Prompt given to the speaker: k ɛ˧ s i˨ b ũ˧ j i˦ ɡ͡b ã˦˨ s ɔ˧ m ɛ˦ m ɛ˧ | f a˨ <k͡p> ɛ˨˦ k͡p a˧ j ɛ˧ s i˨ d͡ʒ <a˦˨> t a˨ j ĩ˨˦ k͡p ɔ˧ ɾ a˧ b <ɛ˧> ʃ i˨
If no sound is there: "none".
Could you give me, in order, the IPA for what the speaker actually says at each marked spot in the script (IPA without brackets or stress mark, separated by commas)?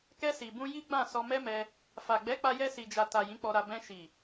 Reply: ɡ͡b, a˨, ɛ̃˧